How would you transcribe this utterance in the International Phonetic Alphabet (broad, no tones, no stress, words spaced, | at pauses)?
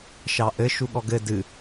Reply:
ʃɑʔɘ ʃuɠɔɡɘ dɨ